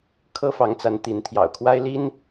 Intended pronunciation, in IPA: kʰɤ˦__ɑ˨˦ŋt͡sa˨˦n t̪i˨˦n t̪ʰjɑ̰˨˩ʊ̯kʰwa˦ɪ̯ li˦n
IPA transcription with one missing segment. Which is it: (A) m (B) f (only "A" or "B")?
B